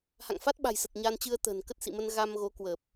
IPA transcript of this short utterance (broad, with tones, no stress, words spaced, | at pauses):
ha̰˧˨ŋfa˦˥t̚ɓa̤˨˩jsə˨˩t̚ ɲa˧nt͡ɕɨ˧ə̯t̪ə̤ː˨˩n kə˦˥t̚sḭ˧˨mə˧n ɣa˧mɣo˨˦ kwəː˨˩p̚